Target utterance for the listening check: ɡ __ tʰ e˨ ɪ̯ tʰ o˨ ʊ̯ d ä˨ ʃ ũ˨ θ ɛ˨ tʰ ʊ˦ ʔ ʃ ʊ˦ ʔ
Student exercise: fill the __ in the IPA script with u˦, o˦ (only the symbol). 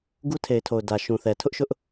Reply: u˦